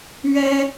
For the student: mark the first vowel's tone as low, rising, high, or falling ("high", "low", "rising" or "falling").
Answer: high